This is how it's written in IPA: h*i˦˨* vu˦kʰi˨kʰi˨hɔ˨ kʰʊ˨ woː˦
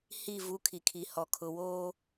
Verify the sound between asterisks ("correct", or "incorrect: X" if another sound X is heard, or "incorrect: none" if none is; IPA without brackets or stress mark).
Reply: correct